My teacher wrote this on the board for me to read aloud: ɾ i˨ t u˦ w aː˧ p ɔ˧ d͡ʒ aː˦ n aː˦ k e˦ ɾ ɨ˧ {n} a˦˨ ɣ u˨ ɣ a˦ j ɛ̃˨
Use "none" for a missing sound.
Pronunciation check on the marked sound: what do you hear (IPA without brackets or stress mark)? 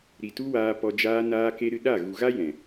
ɗ